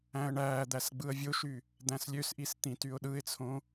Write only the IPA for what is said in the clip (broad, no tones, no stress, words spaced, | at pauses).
æ̃ə̯ɳæːd̪æs ɡ͡bɯə̯vʲoʃy | d̪æ̃slʲøsʔis t̪ĩtyʊ̯ɗɯɪ̯t͡sʰõ